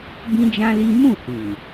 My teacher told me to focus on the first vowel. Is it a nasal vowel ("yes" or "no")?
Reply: yes